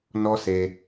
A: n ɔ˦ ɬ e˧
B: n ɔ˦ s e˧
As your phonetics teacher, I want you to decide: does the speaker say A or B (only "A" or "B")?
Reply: B